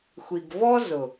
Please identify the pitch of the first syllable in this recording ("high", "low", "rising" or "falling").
low